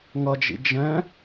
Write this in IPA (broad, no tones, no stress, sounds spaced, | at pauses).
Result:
ŋ ʌ d͡ʒ ḭ d͡ʒ ɛ̃